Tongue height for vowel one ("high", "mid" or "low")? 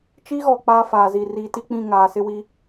high